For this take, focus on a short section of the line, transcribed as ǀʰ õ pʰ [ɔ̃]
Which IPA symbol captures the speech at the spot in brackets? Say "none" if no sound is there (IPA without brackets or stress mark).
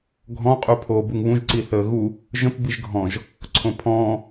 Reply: ɔ̃ː